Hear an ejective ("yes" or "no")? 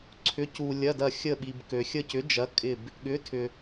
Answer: yes